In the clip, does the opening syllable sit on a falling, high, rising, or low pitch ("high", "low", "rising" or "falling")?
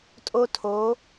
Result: high